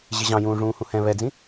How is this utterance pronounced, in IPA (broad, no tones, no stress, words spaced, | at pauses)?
ʑɪʑɑ̃jũː ʐũːhũhɛ̃ βɛd͡zĩ